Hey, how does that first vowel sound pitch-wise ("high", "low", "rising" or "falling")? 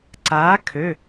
rising